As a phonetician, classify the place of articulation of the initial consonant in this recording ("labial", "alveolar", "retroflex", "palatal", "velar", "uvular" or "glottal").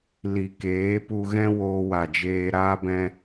alveolar